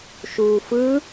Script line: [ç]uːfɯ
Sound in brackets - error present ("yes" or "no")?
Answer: yes